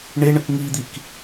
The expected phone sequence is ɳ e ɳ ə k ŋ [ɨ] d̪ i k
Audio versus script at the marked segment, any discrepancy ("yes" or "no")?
yes